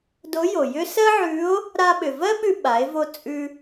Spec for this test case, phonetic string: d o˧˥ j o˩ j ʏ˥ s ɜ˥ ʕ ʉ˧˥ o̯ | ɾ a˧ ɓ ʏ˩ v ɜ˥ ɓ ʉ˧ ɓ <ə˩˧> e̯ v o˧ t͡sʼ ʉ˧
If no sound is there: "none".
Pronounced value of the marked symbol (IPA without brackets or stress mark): a˩˧